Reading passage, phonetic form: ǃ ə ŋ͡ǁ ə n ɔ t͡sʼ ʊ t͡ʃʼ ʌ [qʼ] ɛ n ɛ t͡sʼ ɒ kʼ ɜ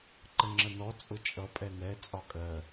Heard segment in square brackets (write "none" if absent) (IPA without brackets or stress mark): pʼ